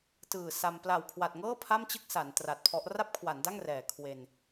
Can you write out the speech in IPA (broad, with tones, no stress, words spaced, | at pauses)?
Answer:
tɯː˨˩sa˧m pla˨˩wkʰwa˨˩t̚ŋɤː˥˩ pʰa˥˩mt͡ɕɯ˥˩k̚ sa˩˦n tra˨˩t̚pʰɔ˦˥ʔ ra˥˩p̚kʰwa˩˦nda˥˩ŋ rɛː˨˩ kʰwe˧n